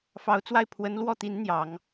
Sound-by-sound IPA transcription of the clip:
f ɑ˧˥ ʊ̯ t͡s w a˥˩ ɪ̯ pʰ w ə˧˥ n l w ɔ˥˩ t̪ i˧˥ n n̪ j ɑ˨˩˦ ŋ

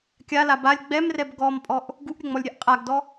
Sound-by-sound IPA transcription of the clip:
kʲ a l a b a lʲ ɡ͡b ɛ m r ɛ b ɡ ɔ m pʼ ɔ ʔ | ɡ u ʔ ɾʲ ɘ ŋ͡m ɔ lʲ ɾʲ ɛ ʔ qʼ a ɡ d ɔ

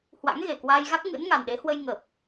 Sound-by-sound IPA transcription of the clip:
h w a̰˧˥ ŋ ɣ e˨˩ k w aː˧ j ɣ a˦˥ k̚ ŋ ɨ̰˧˥ n ŋ a˨˩ n ɗ e˨˦ h w ə˧ j ŋ ə˨˩ p̚

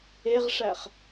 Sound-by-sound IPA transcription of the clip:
e ʁ ʂ æ χ

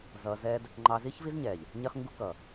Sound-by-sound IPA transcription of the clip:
z ʌ˧ z ɛ˦ d | ŋ͡ǃ ɑ˧ z i˦ ç v i˦ z ɲ ɛ˨ ʎ | ɲ ɪ˦ χ ŋ ɡ u˦ k ʌ˨

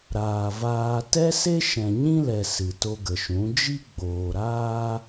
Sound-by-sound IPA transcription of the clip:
ɾ aː˨ v aː˧ t ɛ˦ s e˦ ʃ ɛ̃˨ ɲ ĩ˦ l ɛ˨ s ɨ˨ t o˧ ɡ ə˨ ʃ ũ˨˦ d͡ʒ i˦ ɡ͡b oː˨ ɾ aː˦

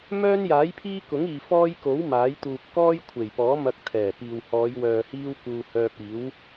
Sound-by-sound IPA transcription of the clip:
m œː˥ n j aː˨˥ j pʰ iː˥ k ʊ˨˥ ŋ iː˨ f ɔː˥ j k o˨˥ w m aː˨˥ j t̪ uː˧ p̚ k ɔː˥ j kʷʰ e˨˩ j p ɔː˨˥ m ɐ˧ k̚ t̪ʰ ɛː˨˩ p iː˨ w h ɔː˨˧ j w œː˨ h iː˥ w k uː˧ h œː˧ p̚ iː˨˥ w

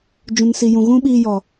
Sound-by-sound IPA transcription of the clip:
d͡ʒ ũ˨ n s i˨ j ũ˨ ɣ ũ˦ ɓ iː˧ j ɔ˨

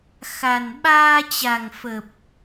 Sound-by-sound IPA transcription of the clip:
x a˨˩ n ɓ aː˧ t͡ɕ a˨˩ ŋ f ə˨˩ p̚

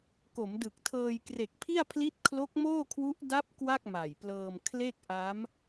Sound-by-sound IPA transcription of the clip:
k o˩˦ m d ɯ˨˩ k̚ tʰ ɤː˧ j k r e˨˩ k̚ pʰ i˥˩ a̯ pʰ l i˦˥ t̚ kʰ l o˦˥ k̚ m oː˥˩ kʰ w u˦˥ ʔ d a˦˥ p̚ k w a˥˩ k̚ m a˨˩ j p l ɤː˧ m kʰ l e˥˩ k̚ ʔ a˦˥ m

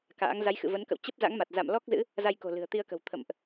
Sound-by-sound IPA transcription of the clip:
k a̰ː˧˥ ŋ z a˨˦ j x ɨ̰˧˨ v ə˨˦ n k ə̰˧˨ w t͡ɕ ə˦˥ p̚ z a̰˧˥ ŋ m a˨˩ t̚ z a̰˧˨ m l ɔ˦˥ k̚ z ɨ̰˧˥ | z a˧ j k o̤˨˩ l ɨ̤˨˩ ə̯ t̪ i˧ ə̯ k ə̤˨˩ w t̪ʰ ə̰˧˨ m ʔ

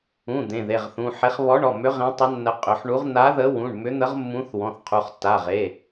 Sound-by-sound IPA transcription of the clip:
ũ˩˧˩ d̪ ẽ˩˧˩ ð e˩˧˩ ʁ θ ũ˩˧˩ ħ e˨˥ χ β ɔ˨˥ ɳ ɔ˩˧˩ m ʏ˨˥ ʁ ẽ˨˥ tˤ ə˨˥ nː ə˨˥ qʼ ʏ˩˧˩ ħ ɳ u˨˥ ʁ n̪ a˨˥ ð ə˨˥ w ũ˩˧˩ ɳ m ʏ˨˥ n̪ ə˨˥ ʁ mː ũ˨˥ θ w ɔ̃˩˧˩ θ qʰ u˩˧˩ χ tː a˩˧˩ ʁ e˩˧˩

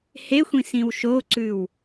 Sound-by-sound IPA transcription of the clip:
h e xʷ ĩ s ĩ w ʃ o ǀ ʉ w

